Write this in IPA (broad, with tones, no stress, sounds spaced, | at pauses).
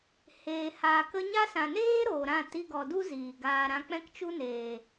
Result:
h eː˨ h aː˨ k ə˧ ɲ a˦ s ã˨ n eː˦ ɾ oː˨ ɾ ã˦˨ t i˧ ɡ ɔ˨ d u˦ z iː˨ ɡ aː˧ ɾ ã˧ k͡p ɛ̃˦ k t͡ʃ u˦ n eː˨